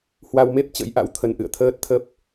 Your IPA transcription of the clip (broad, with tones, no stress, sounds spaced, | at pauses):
h w a˧ w m e˦˥ p̚ t͡ɕ ə̰˧˥ j ʔ a̰˧˥ w t̪ʰ ə˧ n ʔ ɨ̰˧˨ ə̯ t̪ʰ əː˦˥ t̚ t̪ʰ ə˦˥ p̚